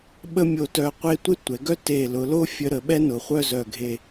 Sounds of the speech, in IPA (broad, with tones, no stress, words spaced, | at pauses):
ɓə˥mʲo˧tœ˧qʷe˥˧ tʷe˥tʷɛ˩˧ɡœ˥ te˧˩ lʊ˩˧lo˥ fʲə˧ ɾə˩˧ɓɛ˥nʊ˩˧χʷœ˥˧ zœ˧˩ɡʱe˧˩